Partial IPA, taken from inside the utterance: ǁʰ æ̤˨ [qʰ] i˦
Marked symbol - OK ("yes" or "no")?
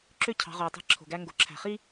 no